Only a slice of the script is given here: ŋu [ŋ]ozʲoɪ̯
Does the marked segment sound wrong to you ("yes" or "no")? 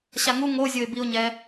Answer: no